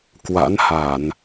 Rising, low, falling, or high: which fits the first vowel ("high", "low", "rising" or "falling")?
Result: rising